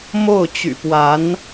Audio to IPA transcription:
mo˥˩ʊ̯t͡ɕy̰˨˩pwa˧˥n

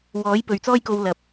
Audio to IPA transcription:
wɔː˨˥j pɵ˨ɥt͡sɔː˥jko˧w lɐ˨p̚

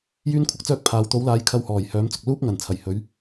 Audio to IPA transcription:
jyː˥nkʷʰɐ˥k̚t͡sœː˥k̚pʰaː˨w t̪o˨˥wlaː˨˧jkʰɐ˧whɔː˨˩j hœː˨˥mt͡sʊ˨k̚ luː˥p̚ŋɐ˨˩n t͡sʰɐ˨˩jhɵ˨˧ɥ

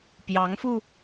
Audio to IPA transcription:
pjɑ˧˥ŋfu˧

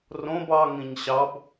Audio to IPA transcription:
rõb ɑ ŋĩɲɕɑb

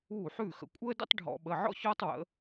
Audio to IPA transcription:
uː˥˩ħʉː˥˩xə̰˩˧ kʷʼəː˥də̰˥tˤ ɖʱɔ̰˧˩˧ɓə˩˧˩ʕɔ̰˥çɔː˥tˤ wə̰˩˧

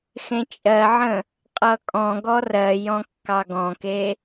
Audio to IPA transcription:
xẽt͡ʃʼɜʕə̃ | qʼʌkʼɔ̃ɡɔ rɜjɔ̃ kːɑɡɔ̃ke

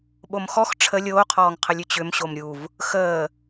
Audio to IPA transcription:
ɓomxɔx ʈ͡ʂʰə lʲoːqʰɔːŋqʰəlʲ ʏt͡ɕʏm ɕomɾʲuv | xəː

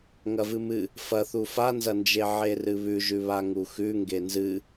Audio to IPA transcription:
ŋɐvɨmɨ | fɐθu fanzɐnd͡ʒe ʕerɨβʉʒʉ βaŋuxʉ ŋɡenzɨ

